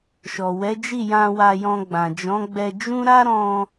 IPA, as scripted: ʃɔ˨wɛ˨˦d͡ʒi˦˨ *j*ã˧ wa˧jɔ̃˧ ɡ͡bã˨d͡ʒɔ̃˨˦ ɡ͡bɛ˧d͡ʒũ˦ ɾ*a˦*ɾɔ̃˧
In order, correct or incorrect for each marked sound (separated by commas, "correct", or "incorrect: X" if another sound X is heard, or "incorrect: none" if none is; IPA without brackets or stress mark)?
correct, correct